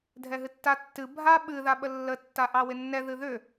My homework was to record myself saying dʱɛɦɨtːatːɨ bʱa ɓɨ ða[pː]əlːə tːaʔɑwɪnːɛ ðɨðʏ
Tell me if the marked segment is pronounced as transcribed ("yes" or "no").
no